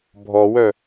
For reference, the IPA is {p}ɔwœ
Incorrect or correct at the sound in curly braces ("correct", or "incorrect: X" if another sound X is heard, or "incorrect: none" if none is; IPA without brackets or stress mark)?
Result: incorrect: bʱ